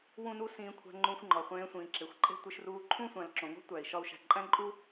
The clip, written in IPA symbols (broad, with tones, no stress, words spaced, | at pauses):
wũ˥nu˥ sĩː˧kʷʰæ̤˧ ŋ͡ǃũ˧xʷŋ͡ǃɒ˩χʷẽː˧sʷĩː˩ ǁe˩xʷǃʼe̤˥tʷi˧ʃ ruː˧ǃʰũ˥sʷæ̃˩l ǁõ˩ŋo̤˥tʷæ˩i̯ ʃɒ˧u̯ʃæ̤˩ ǃʼæ̃˥ǃʼu˥